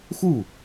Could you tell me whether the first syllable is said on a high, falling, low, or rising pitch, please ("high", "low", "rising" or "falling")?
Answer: falling